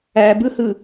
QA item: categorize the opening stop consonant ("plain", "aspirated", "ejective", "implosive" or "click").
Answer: plain